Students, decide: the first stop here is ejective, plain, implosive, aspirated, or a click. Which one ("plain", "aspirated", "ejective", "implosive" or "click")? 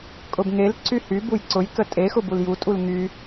ejective